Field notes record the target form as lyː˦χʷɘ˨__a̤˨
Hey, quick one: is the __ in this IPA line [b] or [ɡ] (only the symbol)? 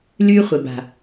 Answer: b